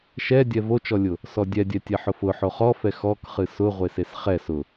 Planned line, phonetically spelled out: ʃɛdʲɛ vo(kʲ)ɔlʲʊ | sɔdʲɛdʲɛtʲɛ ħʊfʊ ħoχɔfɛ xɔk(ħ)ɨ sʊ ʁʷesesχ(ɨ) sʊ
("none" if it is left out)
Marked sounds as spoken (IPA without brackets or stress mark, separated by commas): t͡ʃ, χ, ɛ